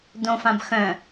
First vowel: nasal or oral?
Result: nasal